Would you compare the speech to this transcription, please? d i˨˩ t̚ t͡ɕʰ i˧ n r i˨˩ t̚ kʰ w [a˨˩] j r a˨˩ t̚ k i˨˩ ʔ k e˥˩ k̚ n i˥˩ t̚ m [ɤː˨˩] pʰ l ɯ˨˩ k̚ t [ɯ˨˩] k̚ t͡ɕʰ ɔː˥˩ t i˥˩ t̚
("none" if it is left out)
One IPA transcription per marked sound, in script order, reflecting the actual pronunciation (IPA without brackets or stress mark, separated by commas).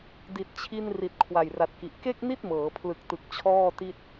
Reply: a˨˩, ɤː˩˦, ɯ˨˩